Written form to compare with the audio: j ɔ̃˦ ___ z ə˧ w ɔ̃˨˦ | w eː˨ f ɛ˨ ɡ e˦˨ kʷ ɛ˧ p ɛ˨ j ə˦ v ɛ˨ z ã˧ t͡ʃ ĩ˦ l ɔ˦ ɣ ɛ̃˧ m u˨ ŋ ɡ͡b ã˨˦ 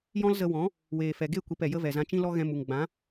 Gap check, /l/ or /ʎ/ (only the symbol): l